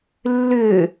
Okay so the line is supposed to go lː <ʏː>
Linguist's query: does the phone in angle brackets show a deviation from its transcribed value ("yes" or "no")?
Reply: no